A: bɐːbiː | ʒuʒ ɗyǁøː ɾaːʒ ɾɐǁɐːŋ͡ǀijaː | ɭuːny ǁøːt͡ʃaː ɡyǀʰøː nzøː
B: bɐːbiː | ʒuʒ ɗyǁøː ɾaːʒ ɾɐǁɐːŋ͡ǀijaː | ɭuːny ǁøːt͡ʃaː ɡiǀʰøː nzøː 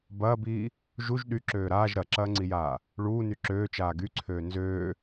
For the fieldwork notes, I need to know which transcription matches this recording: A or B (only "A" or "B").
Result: A